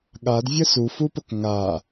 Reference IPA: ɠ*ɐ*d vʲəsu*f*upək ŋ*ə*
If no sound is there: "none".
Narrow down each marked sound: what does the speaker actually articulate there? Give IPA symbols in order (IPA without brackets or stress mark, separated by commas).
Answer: a, f, a